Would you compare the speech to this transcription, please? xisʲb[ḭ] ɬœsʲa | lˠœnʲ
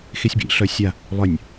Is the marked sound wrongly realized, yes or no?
no